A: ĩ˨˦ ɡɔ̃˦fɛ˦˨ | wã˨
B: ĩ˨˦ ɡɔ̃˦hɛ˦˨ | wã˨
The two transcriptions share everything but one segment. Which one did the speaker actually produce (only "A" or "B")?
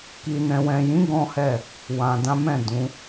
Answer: B